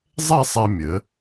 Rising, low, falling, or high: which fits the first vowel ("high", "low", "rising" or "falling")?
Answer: falling